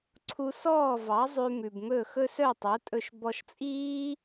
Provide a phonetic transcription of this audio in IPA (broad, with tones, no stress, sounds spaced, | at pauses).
ǀʰ u˧ s ɔː˥˩ v ɑ˩˥ zˤ ʉ˧ m ʉ˩ b m ɵ˥˩ x ɵ˥ s œ˥˩ tˤ o˩˥ tʼ ɵ˧ ʃ b ɔ˧ ʃ t͡sʼ iː˥